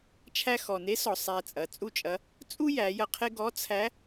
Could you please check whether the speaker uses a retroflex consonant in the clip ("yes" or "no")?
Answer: no